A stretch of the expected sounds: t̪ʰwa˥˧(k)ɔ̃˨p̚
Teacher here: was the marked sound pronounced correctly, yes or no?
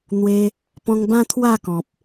yes